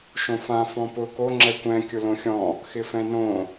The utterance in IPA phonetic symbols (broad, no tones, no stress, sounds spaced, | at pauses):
ʃ õ f ã f ɔ̃ p ʊ k o ŋ͡ǁ ɛ kʷ ɛ̃ kʲ ʊ l õ xʲ ɔ̃ | x ɪ f ɛ̃ n õ